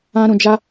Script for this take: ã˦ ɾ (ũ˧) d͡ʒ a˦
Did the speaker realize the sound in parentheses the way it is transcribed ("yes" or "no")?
yes